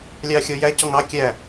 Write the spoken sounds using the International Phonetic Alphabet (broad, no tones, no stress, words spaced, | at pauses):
lʲɑxʲɔjæcɔŋ ɑ kʲæ